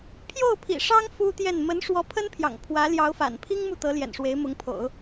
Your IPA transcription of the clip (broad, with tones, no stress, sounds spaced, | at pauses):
pʰ j o˥˩ ʊ̯ pʰ ḭ˨˩ ʂ ɑ˥ ŋ f u˥ t̪ j ɛ˥˩ n m ə˧˥ n ʂ w ɔ˧˥ pʰ ə˥ n pʰ j ɑ̰˨˩ ŋ pʰ w ä˧˥ l j ɑ˧˥ ʊ̯ f a̰˨˩ n pʰ i˥ ŋ m u˥˩ t̪ ɤ˧˥ l j ɛ̰˨˩ n ʂ w e˧˥ ɪ̯ m ʊ˧˥ ŋ pʰ o̰˨˩˦ ʊ̯